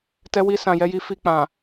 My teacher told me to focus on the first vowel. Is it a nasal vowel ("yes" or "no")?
no